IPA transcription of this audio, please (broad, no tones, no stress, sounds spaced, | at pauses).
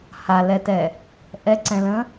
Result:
h a l ɛ t ɛ | ʔ ɛ ǀ ɛ̃ l ə̃